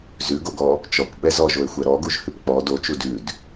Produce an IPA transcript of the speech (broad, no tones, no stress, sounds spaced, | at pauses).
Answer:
z ʉ ɡ o ɡ ɔ | t͡ʃ ɔ kʷ ɓ ɛ z ɔ ʒ o e̯ xʷ ɛ ɾ ɔ ɡ u ʒ h ʉ p k͡p ɔ d o t͡ʃ u d ʉ d